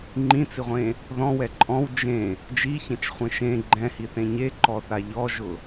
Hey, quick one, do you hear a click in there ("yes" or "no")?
yes